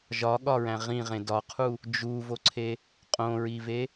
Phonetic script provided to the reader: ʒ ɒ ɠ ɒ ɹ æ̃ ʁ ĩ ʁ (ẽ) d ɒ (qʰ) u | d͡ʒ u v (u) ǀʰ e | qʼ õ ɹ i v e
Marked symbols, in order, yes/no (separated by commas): yes, yes, no